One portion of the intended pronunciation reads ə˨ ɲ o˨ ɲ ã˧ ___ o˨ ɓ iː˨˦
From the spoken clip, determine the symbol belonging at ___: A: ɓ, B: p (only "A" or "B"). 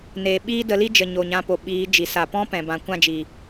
B